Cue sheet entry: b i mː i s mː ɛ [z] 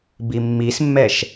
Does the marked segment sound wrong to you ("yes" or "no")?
yes